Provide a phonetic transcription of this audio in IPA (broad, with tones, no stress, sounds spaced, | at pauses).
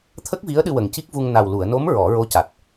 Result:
t̪ʰ ə˦˥ k̚ v i˧˥ ə̯ ɗ ɨ˧ w ə˨˩ ŋ c i˦˥ k̚ v u˧ ŋ n a˨˩ w l u˨˩˨ ə̯ n o˧˥ m ɹ ɔ˨˩˦ ɹ o˧˥ c a˨˩ t̚